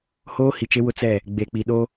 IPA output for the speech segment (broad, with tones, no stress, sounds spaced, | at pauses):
h oː˦ h i˨ t͡ʃ e˦ w ʊ˦ t͡s ɛ˦˨ | ɡ͡b e˨ k͡p i˨ ɗ o˦